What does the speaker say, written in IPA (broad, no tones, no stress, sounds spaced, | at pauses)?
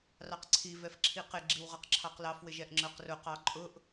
r ɑ q ǀʰ i v ɛ f ǁʰ i q ɪ ɡ͡ǁ i w ʁ ʌ q ǁʰ ɑ q l ɑ f w ɪ ʒ ɛ ʔ ŋ͡ǁ ə˞ q r ʊ q ɑ ǃʼ ʊ ʔ